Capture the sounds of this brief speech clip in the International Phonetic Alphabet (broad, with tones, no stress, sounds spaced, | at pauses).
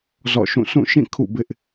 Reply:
z ɔ̰˦˨ ʃ ũ˦˨ s ũ˦˨ ʃ ĩ˦˨ kʰ ṵ˦˨ b ɪ˦ ʔ